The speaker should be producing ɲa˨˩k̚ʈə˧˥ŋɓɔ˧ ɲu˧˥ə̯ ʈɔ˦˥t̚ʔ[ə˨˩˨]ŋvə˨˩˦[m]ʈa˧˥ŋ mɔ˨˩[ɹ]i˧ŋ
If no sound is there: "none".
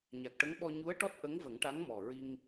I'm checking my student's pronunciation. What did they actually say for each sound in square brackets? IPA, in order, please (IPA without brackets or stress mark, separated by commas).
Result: ə˧˥, ŋ, ɹ